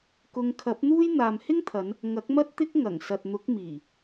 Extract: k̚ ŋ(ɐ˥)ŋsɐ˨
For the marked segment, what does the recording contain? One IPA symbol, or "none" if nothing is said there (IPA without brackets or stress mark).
ɐ˨˩